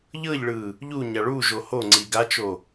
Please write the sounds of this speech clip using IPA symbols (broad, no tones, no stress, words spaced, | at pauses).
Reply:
ʎɤʎɭɯ | ʎuɲa ɭuʒo hoŋ͡ǀi ɡat͡ʃo